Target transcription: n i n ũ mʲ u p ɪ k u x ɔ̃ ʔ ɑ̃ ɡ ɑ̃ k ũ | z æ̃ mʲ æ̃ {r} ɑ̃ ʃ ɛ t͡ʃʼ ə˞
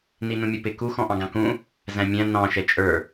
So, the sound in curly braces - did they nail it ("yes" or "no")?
no